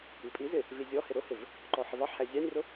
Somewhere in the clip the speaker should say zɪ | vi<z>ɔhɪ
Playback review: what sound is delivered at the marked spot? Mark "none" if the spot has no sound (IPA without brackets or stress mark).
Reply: zʲ